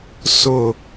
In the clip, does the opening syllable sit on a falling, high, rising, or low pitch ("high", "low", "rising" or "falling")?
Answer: falling